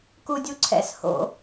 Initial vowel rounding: rounded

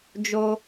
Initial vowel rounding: rounded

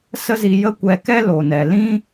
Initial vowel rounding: unrounded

